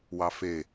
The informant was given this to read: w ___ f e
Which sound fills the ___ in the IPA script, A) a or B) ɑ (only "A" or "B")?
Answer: B